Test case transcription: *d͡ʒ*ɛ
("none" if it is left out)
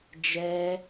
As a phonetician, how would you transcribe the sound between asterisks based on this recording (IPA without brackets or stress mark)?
d͡ʒ